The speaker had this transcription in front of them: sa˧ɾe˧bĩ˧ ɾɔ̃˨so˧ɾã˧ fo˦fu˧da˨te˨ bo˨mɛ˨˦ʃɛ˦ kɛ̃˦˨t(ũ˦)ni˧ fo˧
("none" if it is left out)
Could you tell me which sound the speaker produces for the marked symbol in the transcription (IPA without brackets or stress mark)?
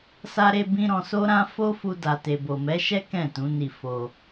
ũ˨˦